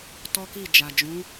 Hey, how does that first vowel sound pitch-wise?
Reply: high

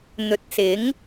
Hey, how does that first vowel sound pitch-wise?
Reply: low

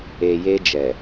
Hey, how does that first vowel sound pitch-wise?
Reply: low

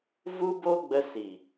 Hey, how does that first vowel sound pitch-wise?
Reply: high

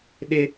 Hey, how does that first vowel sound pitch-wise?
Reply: high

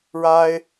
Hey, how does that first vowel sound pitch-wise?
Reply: high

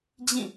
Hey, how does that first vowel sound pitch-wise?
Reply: falling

